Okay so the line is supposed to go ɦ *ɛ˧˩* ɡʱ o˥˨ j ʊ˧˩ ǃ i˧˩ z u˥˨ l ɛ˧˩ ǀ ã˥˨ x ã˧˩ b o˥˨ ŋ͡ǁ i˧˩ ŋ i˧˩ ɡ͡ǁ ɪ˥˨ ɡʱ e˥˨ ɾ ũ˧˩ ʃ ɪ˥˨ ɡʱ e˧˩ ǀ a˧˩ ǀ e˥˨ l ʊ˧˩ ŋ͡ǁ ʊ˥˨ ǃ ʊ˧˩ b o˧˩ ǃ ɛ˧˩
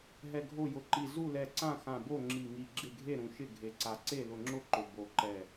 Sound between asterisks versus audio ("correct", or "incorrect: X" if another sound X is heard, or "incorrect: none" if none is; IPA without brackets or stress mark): correct